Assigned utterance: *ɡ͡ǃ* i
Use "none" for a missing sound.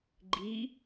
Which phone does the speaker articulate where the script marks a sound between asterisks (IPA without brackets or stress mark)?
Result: ɡ͡ǃ